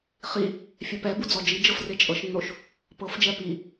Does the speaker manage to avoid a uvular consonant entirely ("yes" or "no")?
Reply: no